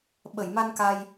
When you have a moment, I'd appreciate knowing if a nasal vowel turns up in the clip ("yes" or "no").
no